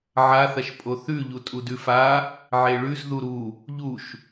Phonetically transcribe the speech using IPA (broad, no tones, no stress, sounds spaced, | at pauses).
ʕ a θ ɐ ʃ pʼ o θ ʉ ʎ u tʼ u d ʉ f a | ʕ e ɭ ʉ z ð u ɾ u | ʎ u ʃ